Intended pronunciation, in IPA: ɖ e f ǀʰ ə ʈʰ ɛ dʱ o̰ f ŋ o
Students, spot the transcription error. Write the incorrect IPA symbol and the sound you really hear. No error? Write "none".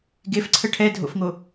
ɖ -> ɡ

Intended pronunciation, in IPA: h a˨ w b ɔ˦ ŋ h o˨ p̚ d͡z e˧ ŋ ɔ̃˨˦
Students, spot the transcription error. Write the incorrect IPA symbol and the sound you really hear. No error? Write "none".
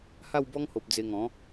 a˨ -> a˥˧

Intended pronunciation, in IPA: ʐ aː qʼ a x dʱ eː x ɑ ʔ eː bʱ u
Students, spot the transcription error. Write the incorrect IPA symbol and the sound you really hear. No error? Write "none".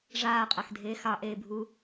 none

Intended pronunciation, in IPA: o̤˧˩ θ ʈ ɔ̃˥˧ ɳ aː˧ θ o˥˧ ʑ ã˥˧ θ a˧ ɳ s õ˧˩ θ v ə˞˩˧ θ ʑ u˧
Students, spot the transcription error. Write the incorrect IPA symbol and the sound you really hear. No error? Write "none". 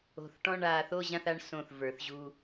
none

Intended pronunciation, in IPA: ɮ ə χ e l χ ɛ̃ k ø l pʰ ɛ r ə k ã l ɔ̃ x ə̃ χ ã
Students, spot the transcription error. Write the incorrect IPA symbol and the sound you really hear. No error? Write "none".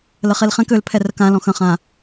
ɮ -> l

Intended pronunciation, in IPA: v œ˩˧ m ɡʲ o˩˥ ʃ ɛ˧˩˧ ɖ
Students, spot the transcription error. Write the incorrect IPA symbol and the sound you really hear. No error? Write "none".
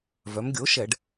none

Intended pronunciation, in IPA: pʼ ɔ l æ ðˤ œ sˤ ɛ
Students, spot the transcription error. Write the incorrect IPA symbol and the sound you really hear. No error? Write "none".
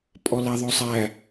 ɛ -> æ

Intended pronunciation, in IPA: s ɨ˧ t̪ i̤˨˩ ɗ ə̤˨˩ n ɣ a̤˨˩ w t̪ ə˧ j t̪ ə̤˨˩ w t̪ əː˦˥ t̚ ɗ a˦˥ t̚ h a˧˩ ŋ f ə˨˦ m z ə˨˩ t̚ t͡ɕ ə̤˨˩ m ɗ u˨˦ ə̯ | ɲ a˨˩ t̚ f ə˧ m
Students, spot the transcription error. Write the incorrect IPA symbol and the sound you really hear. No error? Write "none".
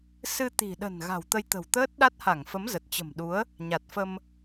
none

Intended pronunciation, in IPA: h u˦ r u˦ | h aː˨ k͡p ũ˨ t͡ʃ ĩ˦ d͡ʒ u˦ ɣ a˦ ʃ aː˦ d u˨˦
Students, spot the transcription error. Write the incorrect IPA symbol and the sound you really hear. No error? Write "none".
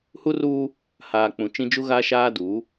none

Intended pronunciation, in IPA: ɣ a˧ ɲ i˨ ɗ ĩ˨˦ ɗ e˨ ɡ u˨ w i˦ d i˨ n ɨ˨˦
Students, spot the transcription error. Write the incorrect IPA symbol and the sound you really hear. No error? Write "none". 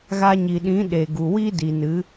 none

